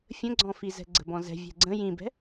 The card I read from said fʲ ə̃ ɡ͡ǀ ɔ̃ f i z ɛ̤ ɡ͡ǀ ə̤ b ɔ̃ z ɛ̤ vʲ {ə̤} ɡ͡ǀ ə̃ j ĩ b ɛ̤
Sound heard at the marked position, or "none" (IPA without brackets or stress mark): ɛ̤